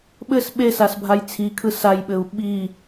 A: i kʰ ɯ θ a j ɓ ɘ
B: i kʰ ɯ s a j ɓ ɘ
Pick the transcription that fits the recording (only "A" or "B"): B